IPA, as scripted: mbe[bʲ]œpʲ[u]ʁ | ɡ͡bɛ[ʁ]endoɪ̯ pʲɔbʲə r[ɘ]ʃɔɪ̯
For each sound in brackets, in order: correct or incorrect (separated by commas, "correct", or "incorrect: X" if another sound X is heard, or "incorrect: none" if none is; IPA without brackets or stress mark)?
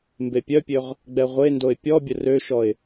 incorrect: pʲ, incorrect: ø, incorrect: ʁʷ, incorrect: ø